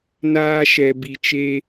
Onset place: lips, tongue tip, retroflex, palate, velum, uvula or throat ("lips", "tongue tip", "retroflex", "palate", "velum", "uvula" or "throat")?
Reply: tongue tip